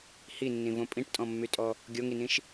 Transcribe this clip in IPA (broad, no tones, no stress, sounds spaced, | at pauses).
h i nː ĩ v õ pʼ ĩ ʈ tʼ ɔ̃ mː y tʼ ɔ | ɡʲ o ŋ i n ĩ ʃ